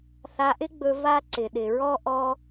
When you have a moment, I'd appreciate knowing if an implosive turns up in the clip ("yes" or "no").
yes